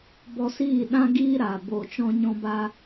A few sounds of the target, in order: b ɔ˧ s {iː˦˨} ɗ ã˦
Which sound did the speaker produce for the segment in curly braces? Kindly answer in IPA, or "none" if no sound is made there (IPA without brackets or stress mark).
iː˦˨